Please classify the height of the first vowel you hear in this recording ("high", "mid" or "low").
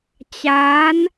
low